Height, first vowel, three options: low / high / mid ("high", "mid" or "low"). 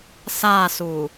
low